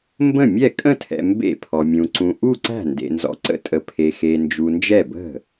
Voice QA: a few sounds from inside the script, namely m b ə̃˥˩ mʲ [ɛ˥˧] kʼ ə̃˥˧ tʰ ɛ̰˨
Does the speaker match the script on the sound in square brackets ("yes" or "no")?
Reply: no